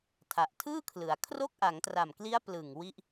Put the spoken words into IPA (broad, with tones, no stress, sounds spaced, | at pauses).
tʰ a˨˩ ʔ tʰ ɯː˥˩ kʰ l ɯ˩˦ a̯ kʰ r o˥˩ k̚ ʔ a˩˦ ŋ t r a˨˩ m k l i˦˥ a̯ p l ɯ˨˩ ŋ w i˥˩ ʔ